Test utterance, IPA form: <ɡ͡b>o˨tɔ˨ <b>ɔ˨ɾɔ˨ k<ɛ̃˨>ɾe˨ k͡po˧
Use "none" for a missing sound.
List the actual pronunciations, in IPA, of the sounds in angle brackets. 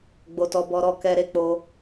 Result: ɡ͡b, b, ɛ˨

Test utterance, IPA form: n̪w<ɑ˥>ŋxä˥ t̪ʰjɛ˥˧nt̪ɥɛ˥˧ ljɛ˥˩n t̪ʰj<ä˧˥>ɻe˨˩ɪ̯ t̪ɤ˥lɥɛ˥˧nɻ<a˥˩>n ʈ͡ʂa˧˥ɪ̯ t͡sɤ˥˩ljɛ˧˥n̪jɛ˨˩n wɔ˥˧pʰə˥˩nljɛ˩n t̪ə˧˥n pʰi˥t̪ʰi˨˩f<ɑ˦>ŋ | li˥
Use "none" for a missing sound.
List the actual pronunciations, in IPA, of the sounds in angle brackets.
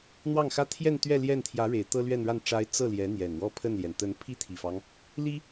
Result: ɑ˥˩, ä˧˥, a˥˩, ɑ˦

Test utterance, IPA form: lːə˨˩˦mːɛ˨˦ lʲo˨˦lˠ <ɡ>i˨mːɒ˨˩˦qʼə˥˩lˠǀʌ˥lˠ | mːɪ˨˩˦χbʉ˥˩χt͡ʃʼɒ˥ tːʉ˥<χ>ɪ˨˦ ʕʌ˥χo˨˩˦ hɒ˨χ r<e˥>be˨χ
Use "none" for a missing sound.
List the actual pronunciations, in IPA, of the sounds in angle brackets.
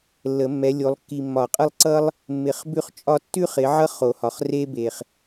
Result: kː, χ, e˥

